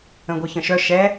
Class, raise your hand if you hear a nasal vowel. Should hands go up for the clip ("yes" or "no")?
yes